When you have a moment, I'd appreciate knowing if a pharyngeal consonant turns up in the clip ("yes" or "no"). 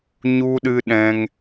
no